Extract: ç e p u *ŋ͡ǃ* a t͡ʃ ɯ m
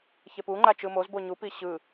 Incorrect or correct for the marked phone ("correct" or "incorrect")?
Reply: correct